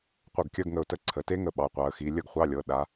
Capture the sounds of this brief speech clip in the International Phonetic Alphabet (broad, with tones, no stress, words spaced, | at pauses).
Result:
qʷœ˧˩ɡkʲœ˧˥˧ɡŋə˧˩ʊ̯tə˧˥˧ ǀʰə˩˧˩te˦˥ŋə˧˩ ɓɑ˩˧˩qʷɑ˨˦ə̯xi˨˦ lʲə˥˩ɡχʷɑ˧˥˧lʲɤ˩˧˩ ɗa˨˦